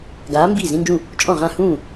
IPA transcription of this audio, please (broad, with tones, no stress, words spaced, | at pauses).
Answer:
ɡaː˨˥ mbiː˥˩zĩ˧˥˧nd͡ʒũ˥˩ | t͡ʃʼɔ̃˥˩ ʁã˥˩hũː˥˩